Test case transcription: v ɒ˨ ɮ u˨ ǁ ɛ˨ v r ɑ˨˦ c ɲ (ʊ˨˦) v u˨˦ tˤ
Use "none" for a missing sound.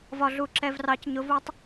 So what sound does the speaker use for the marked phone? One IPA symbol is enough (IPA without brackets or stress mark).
ʊ˨˦